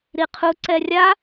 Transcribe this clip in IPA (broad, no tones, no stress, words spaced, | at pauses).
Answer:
ɾiqʰu ǀɛrʲa